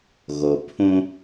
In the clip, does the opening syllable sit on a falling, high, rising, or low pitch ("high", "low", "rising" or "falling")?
low